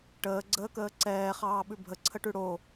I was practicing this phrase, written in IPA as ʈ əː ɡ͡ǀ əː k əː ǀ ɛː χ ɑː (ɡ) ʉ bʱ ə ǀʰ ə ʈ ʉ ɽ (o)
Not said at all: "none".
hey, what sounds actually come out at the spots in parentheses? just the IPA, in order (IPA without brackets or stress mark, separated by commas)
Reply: ɓ, o